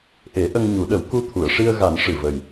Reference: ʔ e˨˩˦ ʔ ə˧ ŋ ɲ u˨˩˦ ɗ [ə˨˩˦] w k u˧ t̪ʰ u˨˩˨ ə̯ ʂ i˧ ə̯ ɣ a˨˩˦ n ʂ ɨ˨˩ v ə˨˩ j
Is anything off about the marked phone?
no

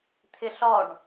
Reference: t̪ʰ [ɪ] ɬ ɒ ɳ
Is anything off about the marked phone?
no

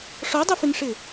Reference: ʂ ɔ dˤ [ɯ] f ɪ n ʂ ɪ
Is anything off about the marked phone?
no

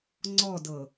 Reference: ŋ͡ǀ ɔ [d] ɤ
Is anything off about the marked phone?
no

